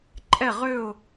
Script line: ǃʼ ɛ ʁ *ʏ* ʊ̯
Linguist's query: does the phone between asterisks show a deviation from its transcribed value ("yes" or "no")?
no